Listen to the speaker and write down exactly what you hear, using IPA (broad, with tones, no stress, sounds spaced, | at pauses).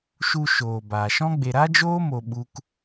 ʃ u˧ ʃ oː˨ b aː˨ ʃ ɔ̃˦ ɡ͡b e˧ ɾ a˦ d͡ʒ oː˦ m o˧ ɓ u˦ k